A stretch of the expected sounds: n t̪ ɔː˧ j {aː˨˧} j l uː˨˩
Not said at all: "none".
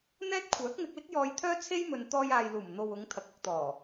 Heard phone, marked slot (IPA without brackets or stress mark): aː˨